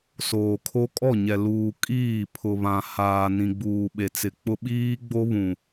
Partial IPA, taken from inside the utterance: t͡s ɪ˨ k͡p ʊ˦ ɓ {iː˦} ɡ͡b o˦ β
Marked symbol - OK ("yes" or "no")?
yes